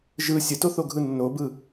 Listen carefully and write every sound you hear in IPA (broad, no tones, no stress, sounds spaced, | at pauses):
ʒ ɯ sʲ ə t o θ o ɡʱ ɯ nː o b ɯ